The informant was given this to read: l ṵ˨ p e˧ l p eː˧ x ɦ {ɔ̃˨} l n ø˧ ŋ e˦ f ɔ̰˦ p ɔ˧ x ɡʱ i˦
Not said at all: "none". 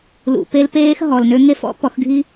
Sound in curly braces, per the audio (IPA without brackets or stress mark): ɔ˨